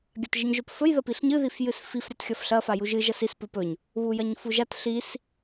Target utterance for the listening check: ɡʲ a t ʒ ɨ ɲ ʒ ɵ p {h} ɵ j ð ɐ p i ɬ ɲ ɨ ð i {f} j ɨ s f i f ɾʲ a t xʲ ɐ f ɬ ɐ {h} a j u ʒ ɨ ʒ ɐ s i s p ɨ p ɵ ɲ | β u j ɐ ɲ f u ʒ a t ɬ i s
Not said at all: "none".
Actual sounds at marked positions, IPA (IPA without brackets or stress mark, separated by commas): f, f, f